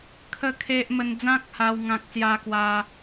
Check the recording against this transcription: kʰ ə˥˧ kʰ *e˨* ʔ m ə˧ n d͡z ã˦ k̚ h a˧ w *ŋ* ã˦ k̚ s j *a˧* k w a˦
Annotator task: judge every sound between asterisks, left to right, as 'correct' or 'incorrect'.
incorrect: e˦, correct, incorrect: a˦

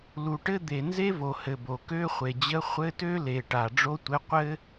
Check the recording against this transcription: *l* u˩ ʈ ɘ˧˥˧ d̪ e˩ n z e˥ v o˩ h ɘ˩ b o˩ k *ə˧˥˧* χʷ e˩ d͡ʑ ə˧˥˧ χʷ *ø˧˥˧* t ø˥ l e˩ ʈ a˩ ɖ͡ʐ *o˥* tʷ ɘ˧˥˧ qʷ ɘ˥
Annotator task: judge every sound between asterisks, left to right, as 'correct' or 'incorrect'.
correct, incorrect: ø˧˥˧, incorrect: ɘ˧˥˧, correct

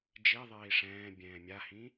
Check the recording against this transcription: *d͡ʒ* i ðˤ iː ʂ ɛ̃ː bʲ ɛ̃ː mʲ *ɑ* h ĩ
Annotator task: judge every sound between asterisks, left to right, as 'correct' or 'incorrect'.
correct, incorrect: a

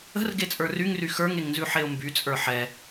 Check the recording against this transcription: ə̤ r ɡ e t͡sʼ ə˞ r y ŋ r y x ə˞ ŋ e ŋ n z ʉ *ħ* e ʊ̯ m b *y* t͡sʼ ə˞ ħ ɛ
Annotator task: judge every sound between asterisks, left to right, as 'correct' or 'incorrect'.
correct, correct

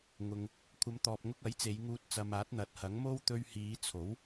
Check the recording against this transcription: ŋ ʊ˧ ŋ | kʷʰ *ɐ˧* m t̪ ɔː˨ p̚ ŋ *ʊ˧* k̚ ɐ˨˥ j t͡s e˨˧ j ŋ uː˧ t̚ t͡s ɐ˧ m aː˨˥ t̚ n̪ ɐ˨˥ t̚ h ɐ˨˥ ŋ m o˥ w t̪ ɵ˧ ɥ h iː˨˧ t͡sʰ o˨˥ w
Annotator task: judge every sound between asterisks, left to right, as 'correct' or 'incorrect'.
incorrect: ɐ˨˧, correct

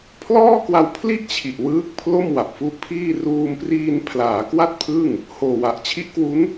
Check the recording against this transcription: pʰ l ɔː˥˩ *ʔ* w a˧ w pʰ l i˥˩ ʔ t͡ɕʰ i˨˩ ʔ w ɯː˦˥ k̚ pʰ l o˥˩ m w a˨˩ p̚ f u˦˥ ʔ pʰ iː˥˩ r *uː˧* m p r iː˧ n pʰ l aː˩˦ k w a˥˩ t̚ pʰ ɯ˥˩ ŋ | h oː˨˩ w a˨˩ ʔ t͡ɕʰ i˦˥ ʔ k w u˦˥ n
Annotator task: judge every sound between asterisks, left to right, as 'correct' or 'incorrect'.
incorrect: k, correct

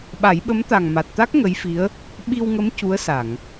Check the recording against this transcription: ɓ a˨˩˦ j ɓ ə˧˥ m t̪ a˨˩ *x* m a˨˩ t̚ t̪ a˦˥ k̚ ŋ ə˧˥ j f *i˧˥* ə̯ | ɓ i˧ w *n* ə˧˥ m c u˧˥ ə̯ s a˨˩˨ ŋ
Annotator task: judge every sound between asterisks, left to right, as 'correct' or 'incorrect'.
incorrect: ŋ, correct, incorrect: ŋ

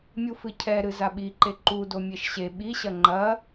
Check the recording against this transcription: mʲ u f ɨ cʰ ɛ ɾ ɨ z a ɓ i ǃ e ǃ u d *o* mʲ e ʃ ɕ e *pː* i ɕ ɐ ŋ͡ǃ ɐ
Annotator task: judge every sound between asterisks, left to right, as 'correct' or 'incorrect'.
correct, incorrect: ɓ

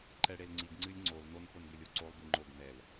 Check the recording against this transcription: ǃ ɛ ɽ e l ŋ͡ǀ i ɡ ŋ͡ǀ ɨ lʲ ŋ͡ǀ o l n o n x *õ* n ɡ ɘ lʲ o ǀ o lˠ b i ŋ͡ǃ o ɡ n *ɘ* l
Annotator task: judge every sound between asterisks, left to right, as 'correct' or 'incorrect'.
incorrect: o, incorrect: ɛ

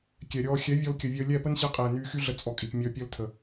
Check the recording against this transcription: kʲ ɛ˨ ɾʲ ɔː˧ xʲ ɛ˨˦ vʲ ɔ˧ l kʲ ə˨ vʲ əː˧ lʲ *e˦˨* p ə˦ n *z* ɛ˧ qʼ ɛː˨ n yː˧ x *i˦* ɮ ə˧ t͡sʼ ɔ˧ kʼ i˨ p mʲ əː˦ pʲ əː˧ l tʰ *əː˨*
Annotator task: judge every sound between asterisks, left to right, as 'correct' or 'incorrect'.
incorrect: ɛ˦˨, incorrect: ɕ, incorrect: y˦, incorrect: ə˨

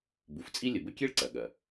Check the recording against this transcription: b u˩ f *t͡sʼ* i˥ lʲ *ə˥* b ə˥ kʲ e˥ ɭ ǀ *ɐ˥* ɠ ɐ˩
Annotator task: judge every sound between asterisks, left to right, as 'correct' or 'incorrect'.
correct, incorrect: ə˩, incorrect: ɐ˩

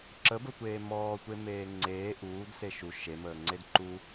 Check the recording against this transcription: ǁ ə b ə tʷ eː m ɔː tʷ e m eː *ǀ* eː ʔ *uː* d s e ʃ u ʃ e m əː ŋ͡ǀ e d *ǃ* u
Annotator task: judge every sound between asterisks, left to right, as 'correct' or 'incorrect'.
incorrect: ŋ͡ǀ, correct, correct

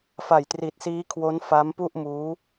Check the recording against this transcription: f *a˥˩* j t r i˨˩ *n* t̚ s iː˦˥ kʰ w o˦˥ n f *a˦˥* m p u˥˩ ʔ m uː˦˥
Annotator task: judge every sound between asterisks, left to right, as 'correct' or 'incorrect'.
incorrect: a˨˩, incorrect: none, correct

